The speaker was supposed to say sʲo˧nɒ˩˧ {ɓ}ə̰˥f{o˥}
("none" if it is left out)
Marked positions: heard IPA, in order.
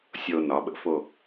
ɓ, o˥˧

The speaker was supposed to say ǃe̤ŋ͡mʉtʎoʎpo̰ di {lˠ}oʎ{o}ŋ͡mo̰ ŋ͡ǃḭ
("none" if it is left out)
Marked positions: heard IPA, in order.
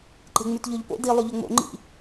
lˠ, ɵ

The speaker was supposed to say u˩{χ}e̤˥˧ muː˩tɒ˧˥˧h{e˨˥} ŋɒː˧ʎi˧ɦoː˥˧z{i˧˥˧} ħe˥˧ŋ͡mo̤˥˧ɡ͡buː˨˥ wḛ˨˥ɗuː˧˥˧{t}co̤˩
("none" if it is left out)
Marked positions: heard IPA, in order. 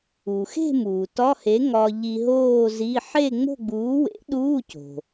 x, e˨˥, i˧˥˧, none

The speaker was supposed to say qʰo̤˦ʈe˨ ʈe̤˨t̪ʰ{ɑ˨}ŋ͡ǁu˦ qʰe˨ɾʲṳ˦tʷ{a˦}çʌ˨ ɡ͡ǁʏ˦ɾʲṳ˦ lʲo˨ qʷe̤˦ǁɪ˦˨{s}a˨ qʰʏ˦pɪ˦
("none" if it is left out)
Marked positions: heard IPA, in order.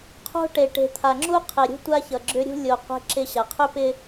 a˨, a˦, ɕ

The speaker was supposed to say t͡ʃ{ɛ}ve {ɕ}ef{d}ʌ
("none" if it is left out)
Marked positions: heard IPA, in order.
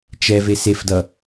ɛ, s, d

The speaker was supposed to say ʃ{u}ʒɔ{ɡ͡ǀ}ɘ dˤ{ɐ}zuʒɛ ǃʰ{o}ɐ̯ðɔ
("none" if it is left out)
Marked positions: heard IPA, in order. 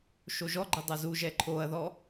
o, ɡ͡ǃ, ɐ, o

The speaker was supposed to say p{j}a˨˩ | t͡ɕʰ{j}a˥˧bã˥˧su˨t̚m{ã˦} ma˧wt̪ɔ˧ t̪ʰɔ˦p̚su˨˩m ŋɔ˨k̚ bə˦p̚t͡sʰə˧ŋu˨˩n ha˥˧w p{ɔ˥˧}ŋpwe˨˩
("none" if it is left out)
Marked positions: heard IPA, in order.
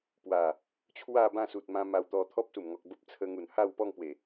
w, w, ã˧, ɔ˥˧

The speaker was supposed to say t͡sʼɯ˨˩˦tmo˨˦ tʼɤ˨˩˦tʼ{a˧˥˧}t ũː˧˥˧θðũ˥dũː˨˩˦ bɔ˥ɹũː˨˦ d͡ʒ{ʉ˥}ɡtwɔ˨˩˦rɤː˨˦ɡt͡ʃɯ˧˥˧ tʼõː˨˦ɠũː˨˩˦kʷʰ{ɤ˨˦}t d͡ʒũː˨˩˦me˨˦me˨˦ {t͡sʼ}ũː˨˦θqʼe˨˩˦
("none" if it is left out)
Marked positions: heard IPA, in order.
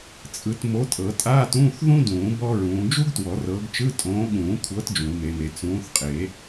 aː˧˥˧, u˥, ɤ˨˦, t͡s

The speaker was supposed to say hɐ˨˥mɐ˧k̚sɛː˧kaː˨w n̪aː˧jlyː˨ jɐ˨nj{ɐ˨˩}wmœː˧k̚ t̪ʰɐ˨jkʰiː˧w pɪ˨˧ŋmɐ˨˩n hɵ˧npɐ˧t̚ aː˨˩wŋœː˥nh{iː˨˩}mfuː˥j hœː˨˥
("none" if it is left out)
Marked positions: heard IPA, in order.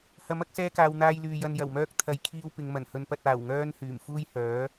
ɐ˨˩, yː˨˩

